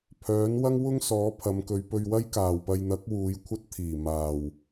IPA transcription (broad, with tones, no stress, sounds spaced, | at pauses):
pʰ œː˨˥ n w ɐ˥ ŋ w ʊ˥ ŋ s ɔː˨˥ pʰ ɐ˨˧ m k ɵ˨˧ ɥ p ɵ˧ ɥ w ɐ˥ j k aː˨ w p ɐ˧ j n̪ ɐ˨˥ k̚ w uː˨˧ j kʷʰ ɐ˥ t̚ t̪ʰ iː˨˩ m aː˨ w